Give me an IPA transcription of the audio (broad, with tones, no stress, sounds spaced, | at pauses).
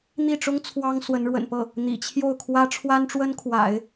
n̪ i˥˩ ʈ͡ʂ ʊ˥ ŋ t͡sʰ w ɑ˥ ŋ s w ə˧˥ n ɻ w ə̰˨˩ n p ɤ˥˩ | n̪ ḭ˨˩ t͡ɕʰ j o˥˩ ʊ̯ kʰ w ä˥ ʈ͡ʂʰ w a˥ n ʈ͡ʂ w ə˥ n kʰ w a̰˨˩˦ ɪ̯